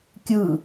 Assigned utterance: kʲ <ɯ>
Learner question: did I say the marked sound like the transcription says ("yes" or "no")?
yes